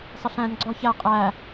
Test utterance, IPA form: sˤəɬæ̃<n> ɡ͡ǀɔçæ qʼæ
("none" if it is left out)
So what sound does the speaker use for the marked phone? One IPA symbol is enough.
n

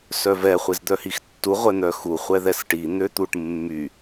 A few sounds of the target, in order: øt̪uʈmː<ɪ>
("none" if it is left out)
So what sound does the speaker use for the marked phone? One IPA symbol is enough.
y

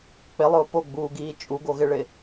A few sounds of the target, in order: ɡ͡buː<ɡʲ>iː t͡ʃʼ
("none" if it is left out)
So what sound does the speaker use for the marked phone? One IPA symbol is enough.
ɡ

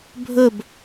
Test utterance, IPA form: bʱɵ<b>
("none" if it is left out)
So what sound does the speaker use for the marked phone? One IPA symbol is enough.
b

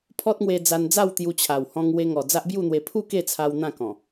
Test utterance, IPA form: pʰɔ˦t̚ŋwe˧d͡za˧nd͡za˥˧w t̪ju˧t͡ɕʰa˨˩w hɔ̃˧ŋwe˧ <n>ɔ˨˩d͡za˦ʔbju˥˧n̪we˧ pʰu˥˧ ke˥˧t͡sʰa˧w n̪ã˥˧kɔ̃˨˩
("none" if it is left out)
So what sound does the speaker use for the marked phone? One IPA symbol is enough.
ŋ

